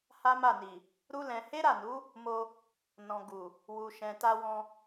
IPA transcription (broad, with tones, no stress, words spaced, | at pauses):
ha˦ma˦˨ni˨ | ɾu˦lɛ̃˧ he˦ɾa˦˨nu˨˦ | mo˧ | nɔ̃˨ ɡu˨ | wu˨ ʃɛ̃˨ta˧wɔ̃˧